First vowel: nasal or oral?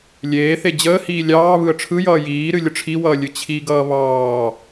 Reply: oral